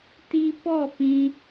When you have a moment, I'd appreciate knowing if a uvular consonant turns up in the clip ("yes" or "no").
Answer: no